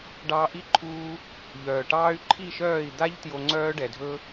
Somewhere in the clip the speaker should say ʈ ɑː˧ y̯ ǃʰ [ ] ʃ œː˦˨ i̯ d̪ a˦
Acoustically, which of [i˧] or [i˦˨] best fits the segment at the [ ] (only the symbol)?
i˦˨